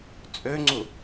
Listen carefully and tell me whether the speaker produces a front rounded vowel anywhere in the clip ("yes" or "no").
yes